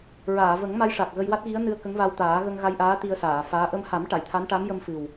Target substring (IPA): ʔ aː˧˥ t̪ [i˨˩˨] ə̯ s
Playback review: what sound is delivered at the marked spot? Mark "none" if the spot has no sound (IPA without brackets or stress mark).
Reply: i˧